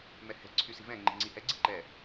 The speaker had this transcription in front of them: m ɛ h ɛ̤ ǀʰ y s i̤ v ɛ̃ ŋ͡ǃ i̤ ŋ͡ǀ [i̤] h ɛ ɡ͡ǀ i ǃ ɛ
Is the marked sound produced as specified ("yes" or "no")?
no